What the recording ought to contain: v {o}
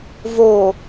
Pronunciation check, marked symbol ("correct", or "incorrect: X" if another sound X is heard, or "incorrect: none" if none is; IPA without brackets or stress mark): correct